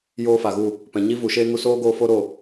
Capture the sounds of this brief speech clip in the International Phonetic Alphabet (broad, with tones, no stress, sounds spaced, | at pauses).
j oː˦ f a˨ ɣ u˦˨ | p ɛ̃˨ ɲ i˦ v u˨ ʃ eː˦ ŋ u˧ s oː˦ ɡ oː˧ f o˦ ɾ o˦˨